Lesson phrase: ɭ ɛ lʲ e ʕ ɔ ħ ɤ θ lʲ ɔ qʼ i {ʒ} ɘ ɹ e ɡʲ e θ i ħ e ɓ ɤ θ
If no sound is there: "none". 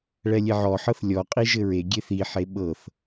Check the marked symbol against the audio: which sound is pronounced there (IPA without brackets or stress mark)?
ʒ